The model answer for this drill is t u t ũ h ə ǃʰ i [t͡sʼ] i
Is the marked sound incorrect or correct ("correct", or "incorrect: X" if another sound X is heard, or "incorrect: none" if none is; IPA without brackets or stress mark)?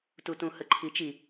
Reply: incorrect: t͡ʃ